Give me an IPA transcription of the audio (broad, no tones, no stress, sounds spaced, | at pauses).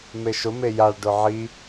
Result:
m e ʃ ʊ m e j a ɭ ɖ ʊ ʕ i